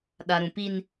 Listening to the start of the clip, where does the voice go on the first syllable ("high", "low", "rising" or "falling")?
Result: low